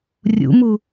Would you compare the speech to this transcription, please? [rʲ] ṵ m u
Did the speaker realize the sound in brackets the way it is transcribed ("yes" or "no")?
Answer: yes